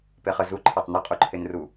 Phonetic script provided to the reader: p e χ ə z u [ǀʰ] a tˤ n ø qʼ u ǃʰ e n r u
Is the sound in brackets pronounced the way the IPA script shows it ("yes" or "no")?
no